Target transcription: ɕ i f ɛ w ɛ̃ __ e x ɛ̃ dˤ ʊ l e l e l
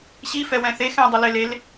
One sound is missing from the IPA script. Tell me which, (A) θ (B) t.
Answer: A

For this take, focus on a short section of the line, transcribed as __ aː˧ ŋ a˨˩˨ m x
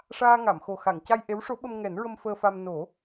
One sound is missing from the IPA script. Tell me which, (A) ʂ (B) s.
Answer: A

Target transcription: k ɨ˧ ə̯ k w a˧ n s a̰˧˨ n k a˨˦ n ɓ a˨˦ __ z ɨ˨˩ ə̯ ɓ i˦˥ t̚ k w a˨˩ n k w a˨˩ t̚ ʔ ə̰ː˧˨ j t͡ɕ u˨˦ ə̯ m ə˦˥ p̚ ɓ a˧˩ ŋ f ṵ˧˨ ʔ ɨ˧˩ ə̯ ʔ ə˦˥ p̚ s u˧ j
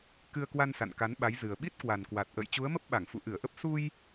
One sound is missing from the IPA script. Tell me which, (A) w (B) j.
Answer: B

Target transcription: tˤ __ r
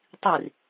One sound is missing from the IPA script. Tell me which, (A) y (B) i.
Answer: B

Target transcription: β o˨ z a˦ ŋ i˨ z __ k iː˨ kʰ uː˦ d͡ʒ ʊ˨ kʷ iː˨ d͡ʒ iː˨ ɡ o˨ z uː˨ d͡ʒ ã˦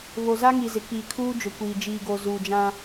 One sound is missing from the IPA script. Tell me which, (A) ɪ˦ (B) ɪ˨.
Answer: B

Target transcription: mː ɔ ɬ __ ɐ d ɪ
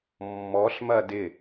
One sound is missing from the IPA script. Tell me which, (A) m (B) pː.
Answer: A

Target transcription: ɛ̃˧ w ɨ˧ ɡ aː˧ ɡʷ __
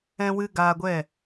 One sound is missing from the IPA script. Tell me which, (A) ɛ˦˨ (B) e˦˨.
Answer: A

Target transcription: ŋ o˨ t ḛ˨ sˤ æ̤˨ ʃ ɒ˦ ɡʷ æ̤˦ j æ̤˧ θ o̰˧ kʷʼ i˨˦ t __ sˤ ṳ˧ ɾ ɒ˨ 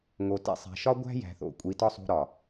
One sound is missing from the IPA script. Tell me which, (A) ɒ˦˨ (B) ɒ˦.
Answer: B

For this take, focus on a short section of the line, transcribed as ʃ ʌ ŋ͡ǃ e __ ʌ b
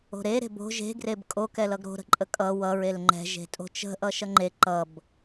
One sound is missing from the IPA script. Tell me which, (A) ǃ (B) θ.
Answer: A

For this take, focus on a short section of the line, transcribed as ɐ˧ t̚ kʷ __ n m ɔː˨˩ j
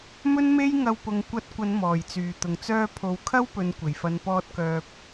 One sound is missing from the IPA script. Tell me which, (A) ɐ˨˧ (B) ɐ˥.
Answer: A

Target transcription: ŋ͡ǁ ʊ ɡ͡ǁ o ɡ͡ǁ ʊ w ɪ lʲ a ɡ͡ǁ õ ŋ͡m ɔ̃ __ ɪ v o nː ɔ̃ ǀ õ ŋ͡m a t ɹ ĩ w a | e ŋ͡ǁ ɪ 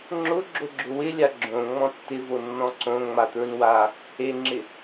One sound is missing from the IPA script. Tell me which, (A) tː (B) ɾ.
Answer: A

